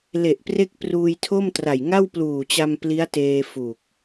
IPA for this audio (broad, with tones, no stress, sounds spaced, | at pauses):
l e˨˩ ʔ p r e˦˥ k̚ p r uː˧ j tʰ o˥˩ m t r a˨˩ j ŋ a˥˩ w p l uː˨˩ t͡ɕ a˧ m p l i˦˥ a̯ t eː˧ f u˨˩ k̚